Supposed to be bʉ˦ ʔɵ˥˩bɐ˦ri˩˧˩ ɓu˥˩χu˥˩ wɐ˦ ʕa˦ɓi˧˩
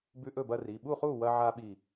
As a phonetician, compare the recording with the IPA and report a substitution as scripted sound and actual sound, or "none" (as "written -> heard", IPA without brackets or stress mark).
none